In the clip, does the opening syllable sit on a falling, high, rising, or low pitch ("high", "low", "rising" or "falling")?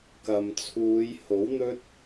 low